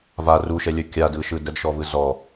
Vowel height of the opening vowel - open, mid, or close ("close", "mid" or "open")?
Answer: open